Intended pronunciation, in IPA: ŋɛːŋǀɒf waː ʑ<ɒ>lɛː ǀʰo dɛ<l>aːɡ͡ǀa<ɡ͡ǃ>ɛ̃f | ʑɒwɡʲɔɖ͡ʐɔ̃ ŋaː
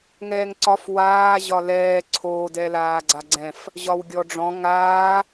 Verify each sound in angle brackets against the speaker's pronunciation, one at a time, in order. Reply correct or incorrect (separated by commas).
correct, correct, incorrect